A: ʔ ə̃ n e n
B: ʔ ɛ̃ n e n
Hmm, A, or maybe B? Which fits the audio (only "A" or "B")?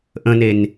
A